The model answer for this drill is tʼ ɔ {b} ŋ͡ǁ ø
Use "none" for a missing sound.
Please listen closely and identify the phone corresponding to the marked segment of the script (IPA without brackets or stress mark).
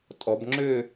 b